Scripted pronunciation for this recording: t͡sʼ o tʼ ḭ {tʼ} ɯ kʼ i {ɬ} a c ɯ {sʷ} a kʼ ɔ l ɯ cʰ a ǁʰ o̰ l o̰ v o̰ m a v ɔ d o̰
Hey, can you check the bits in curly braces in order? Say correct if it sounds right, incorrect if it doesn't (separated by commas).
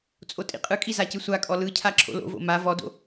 incorrect, incorrect, correct